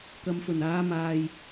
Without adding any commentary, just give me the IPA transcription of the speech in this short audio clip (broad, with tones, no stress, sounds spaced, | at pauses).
k ɐ˨ m f ɵ˨˩ n aː˨˧ m aː˨ j